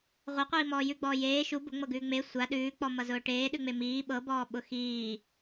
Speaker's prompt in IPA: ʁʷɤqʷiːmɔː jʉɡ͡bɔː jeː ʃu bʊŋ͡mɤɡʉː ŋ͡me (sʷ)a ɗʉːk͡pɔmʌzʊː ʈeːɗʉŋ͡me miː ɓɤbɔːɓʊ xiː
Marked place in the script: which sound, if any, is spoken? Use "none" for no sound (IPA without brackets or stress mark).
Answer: sʷ